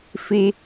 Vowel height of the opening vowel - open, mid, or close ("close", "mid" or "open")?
close